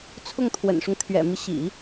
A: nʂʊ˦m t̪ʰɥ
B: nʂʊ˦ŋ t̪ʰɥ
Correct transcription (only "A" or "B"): B